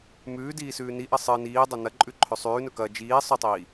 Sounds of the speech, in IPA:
m ʉː d iː s ʉː n i ʔ ɐ sˤ ɨ n iː dˤ ɐ n ɐ ǃʼ ʉ ǃʰ ɵ sˤ ʉː n ɵ k ɐ d͡ʒ iː sˤ ɵ tˤ iː

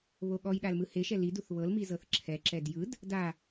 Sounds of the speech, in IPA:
β o ɠ ɔ j ɗ a l m ɯ h e ʃ ɛ l i d u θ β ɤ l m i z ɤ θ ǁʰ ɛ ǁ ɛ d j ɯ d | d a

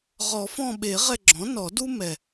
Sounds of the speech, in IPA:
ʁ ɔ˨˩˦ f ɔ̃˦˨ ɓ e˨˩˦ ʁ ɛ˦˨ ɡ͡ǁ ɔ̃˩˥ n ɔ˨˩˦ d u˥ m ɛ˨˩

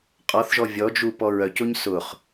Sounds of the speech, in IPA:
qʼ ɔ θ ʒ ɔ vʲ ɔ d͡ʒ u p ɔ ɹ œ c o ɲ s ʊ χ

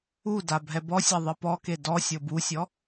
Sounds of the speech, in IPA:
u d a bʱ ɛ b ɔ sʲ a ðˤ ɯ p ɔ k e d ɔ sʲ ɤ b u sʲ ɔ

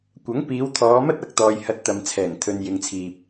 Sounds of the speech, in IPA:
kʷ ɐ˨˥ ŋ p iː˨˧ w t̪ʰ ɔː˨˧ m ɐ˥ t̚ ɐ˨ k̚ t̪ ɔː˨ j h ɐ˧ t̚ t̪ ɐ˨ m t͡sʰ ɛː˨˩ ŋ t̪ʰ ɵ˨ n j ɪ˨ ŋ t͡sʰ iː˨ p̚

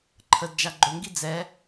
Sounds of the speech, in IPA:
ǃʰ ə d d͡ʒ a ɡ͡ǃ ɵ ŋ ɡ i d͡z ɛ

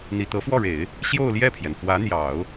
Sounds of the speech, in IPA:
n̪ i˨˩ t̪ ɤ˧˥ f w ɔ˥˩ ɻ e˨˩˦ ɪ̯ | ɕ j o˥˧ ʊ̯ l j ɛ˥˩ pʰ j ɛ˩ n f w ä˧˥ n̪ j ɑ˨˩˦ ʊ̯

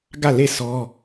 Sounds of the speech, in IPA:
ɡ ä˦˨ l e˦˨ s ɔ˦

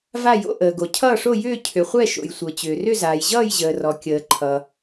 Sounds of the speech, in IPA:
v a˥˧ j o̰˥˧ ʔ əː˨ ɡ o˨ cʰ ʌː˥˧ ʂ o˥˧ j ʏː˥˧ cʰ ʏ˨ χʷ ɛ˥˧ ʃ o̰˨ j sʷ ɤ˨ t͡ɕ ʏː˨ r ʏ˥˧ z aː˨ j ʑ ʌː˥˧ j ʑ əː˨ r ɔ˨ kʲ əː˨ ǃʰ ʌ˨

